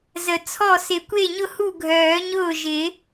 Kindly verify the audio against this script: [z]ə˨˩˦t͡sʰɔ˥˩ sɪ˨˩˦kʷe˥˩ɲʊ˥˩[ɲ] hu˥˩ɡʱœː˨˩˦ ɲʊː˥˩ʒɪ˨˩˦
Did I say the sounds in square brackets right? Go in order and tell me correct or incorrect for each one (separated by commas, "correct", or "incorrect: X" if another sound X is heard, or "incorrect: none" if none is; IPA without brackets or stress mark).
correct, incorrect: none